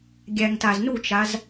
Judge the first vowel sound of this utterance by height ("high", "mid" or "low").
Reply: low